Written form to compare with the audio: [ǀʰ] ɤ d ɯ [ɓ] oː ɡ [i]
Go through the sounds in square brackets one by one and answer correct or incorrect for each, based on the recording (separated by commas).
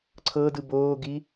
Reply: correct, incorrect, correct